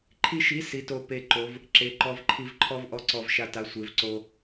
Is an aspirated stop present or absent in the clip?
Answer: present